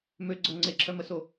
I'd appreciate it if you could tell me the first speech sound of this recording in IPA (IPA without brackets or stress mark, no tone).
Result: m